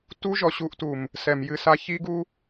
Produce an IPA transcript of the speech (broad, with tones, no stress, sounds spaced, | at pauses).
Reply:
t u˦ ʒ ɔ˨ ɕ u˦ ʔ t u˨ m | s ɛ˨ m j ɨ˦ s a˦ ç i˦ ɡ u˦